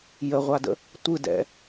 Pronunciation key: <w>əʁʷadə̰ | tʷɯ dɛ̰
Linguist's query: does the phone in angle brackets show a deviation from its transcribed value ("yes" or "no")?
yes